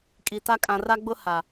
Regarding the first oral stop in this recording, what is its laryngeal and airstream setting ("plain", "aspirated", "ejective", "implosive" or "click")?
ejective